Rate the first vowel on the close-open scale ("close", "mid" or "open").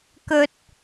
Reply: mid